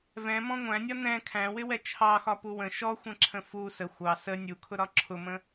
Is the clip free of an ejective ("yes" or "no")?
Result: yes